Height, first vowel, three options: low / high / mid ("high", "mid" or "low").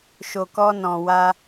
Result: mid